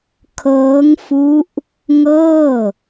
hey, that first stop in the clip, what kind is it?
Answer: aspirated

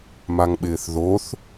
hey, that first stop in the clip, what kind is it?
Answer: implosive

